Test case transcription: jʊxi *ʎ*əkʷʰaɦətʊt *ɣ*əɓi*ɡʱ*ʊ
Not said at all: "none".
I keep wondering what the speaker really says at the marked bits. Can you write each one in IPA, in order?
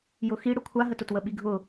ɽ, w, ɡʱ

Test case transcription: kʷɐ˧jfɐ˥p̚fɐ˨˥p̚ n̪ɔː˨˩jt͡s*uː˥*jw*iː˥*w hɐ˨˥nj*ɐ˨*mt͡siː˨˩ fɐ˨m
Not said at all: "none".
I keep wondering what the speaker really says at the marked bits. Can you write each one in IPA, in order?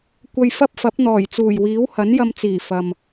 uː˨˩, iː˨˥, ɐ˧

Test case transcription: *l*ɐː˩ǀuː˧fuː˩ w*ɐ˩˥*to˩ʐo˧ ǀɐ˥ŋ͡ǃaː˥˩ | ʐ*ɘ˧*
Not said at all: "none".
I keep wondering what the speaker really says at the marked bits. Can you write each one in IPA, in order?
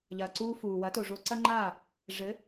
ʎ, ɐ˩˥, ɘ˩˥

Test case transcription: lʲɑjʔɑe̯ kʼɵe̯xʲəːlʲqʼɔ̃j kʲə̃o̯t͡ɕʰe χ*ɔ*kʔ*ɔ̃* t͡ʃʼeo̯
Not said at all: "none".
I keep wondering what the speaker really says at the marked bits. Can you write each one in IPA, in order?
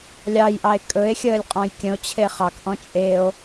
ɑ, ɔ̃

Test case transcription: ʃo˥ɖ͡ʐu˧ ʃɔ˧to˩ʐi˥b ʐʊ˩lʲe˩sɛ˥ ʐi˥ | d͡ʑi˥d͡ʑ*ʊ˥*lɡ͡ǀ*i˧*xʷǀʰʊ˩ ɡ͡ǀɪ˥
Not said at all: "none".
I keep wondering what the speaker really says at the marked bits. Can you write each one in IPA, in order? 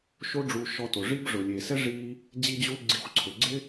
u˥, i˧

